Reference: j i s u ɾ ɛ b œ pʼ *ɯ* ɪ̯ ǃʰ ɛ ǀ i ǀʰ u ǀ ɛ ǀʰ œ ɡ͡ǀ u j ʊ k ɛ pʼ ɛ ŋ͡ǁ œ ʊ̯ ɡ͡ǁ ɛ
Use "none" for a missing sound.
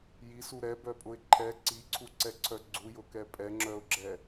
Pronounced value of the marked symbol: ʊ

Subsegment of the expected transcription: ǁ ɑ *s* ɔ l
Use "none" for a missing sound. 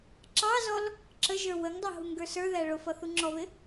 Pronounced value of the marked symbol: z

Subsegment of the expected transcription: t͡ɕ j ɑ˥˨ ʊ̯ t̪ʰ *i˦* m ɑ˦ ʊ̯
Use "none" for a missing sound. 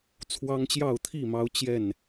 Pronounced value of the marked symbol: i˥˨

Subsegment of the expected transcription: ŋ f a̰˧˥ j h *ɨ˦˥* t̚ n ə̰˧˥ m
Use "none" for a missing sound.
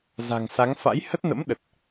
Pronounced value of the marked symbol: ə˦˥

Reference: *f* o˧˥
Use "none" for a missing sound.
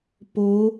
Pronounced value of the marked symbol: p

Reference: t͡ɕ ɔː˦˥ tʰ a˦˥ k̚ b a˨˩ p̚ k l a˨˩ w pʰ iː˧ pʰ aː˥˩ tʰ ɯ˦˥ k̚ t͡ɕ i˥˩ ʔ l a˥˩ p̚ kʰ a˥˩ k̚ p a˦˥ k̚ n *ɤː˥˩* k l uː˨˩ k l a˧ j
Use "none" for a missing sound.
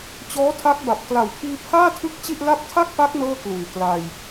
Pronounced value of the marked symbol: ɤː˥˩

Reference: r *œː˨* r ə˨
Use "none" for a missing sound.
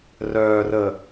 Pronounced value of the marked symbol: œː˨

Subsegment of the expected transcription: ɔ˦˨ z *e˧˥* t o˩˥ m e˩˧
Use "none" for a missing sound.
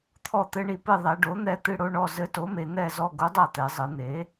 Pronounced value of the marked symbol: ɘ˧˥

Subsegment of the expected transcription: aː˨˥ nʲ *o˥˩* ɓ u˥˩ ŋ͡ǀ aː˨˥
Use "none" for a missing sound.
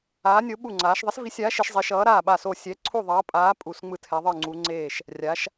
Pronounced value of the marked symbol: o˨˥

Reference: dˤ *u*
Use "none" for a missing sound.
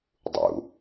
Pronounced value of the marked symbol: ṵ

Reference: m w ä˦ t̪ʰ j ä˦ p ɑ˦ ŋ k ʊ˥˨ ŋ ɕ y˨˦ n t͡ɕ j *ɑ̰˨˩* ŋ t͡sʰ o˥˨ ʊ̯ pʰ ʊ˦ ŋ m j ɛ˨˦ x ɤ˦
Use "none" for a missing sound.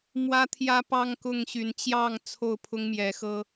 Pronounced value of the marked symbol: ɑ˥˨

